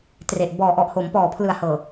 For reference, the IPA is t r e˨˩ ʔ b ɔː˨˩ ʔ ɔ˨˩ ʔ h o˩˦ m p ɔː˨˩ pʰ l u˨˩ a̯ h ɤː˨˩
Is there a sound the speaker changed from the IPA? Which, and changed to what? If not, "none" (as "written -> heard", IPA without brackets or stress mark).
u˨˩ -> ɯ˨˩